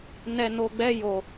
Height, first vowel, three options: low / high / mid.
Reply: mid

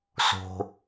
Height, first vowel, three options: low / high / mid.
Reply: mid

